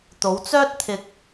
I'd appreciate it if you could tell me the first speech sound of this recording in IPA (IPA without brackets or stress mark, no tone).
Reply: t̪